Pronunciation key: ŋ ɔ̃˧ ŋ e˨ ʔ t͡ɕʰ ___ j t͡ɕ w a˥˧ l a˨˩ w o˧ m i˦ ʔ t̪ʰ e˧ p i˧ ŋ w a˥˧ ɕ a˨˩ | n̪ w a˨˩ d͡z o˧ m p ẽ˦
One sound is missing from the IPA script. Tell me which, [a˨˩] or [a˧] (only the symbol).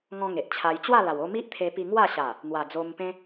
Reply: a˧